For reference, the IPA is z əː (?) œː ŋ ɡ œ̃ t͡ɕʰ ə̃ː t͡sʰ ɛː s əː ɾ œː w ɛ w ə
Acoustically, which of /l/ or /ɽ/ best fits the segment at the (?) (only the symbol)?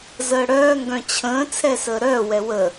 ɽ